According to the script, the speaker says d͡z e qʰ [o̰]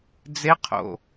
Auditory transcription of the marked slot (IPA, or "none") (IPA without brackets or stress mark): o̰